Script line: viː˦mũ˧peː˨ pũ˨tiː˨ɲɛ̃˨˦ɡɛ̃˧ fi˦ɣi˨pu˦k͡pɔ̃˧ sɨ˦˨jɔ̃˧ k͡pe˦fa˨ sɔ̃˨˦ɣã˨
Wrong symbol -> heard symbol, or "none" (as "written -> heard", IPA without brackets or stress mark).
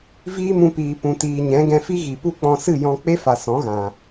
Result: eː˨ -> iː˨